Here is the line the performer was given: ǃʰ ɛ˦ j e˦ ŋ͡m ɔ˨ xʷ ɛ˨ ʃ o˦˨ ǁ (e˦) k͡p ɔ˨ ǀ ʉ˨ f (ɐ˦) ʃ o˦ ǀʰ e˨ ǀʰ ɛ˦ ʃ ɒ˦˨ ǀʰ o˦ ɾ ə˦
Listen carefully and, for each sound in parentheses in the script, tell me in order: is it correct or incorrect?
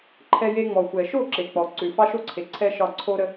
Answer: incorrect, incorrect

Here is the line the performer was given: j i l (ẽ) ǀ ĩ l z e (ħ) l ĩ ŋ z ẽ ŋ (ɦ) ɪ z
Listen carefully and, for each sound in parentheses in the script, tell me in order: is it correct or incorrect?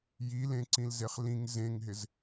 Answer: correct, incorrect, correct

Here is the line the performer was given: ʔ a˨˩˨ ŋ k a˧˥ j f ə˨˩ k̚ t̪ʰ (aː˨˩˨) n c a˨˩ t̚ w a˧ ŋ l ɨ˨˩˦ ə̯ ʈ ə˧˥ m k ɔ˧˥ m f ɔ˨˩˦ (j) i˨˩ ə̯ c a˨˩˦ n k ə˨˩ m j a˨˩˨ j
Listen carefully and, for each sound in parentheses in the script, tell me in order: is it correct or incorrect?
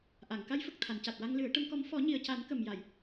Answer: incorrect, incorrect

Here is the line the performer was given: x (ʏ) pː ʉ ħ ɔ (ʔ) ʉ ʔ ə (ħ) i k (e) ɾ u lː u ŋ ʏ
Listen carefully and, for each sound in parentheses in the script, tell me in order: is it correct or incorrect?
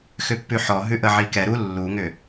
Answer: correct, incorrect, incorrect, incorrect

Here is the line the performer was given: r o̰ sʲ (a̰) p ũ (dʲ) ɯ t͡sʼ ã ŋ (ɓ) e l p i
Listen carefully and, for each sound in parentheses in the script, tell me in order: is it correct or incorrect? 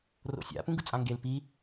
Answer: correct, incorrect, incorrect

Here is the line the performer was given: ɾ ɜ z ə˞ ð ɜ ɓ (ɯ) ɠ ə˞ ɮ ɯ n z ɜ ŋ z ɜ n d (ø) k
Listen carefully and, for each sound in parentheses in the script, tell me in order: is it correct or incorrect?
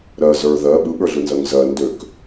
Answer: correct, correct

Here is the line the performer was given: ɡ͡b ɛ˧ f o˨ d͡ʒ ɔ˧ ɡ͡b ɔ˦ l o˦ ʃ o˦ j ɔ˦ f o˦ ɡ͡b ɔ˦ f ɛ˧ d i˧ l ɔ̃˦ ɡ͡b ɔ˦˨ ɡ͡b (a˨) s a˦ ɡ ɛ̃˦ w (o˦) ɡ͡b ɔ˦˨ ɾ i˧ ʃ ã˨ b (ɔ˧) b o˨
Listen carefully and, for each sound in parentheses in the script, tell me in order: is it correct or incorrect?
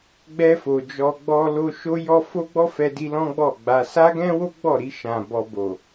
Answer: incorrect, correct, correct

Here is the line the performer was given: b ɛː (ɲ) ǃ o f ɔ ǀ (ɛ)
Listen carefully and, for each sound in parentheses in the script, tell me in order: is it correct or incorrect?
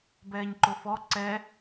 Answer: correct, correct

